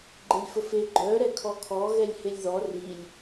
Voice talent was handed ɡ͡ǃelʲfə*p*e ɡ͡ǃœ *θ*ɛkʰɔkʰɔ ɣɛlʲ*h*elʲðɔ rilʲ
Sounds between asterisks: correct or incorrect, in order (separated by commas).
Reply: incorrect, incorrect, correct